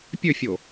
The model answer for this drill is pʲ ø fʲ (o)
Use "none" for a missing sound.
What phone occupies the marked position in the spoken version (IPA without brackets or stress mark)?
o